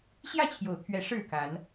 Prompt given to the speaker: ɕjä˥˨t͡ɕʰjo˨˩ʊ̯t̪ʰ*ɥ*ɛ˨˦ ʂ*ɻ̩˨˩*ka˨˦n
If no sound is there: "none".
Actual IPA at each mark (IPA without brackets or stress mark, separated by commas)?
ɥ, ɻ̩˥˨